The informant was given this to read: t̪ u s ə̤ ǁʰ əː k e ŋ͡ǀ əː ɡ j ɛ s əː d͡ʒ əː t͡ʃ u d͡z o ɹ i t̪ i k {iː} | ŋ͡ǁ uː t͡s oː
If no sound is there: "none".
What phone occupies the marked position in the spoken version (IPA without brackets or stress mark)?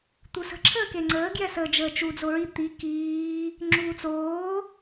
iː